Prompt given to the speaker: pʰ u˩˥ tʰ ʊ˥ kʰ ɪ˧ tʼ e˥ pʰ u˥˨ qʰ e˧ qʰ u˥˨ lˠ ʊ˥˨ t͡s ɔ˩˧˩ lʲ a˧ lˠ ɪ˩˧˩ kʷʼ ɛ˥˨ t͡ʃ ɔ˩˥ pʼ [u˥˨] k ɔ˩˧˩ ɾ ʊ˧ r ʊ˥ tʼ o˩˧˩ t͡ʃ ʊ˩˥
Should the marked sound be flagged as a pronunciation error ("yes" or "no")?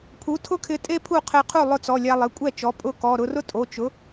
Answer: yes